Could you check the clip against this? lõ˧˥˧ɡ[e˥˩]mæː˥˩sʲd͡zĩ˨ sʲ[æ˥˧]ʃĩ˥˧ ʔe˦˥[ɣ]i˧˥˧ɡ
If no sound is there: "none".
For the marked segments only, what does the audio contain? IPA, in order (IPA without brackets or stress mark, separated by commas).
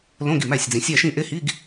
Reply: i˥˩, æ˥˧, h